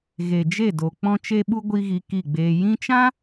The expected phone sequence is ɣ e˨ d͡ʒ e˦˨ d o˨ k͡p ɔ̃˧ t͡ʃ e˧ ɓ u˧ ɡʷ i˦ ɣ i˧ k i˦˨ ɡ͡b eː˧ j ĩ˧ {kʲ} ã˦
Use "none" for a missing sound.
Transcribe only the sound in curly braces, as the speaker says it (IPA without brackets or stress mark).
t͡ʃ